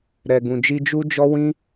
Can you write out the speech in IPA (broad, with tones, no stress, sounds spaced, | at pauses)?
ɾ ɛ˧ ɡ ũ˧ d͡ʒ i˦ d͡ʒ u˦ d͡ʒ ɔ˦ w ĩ˦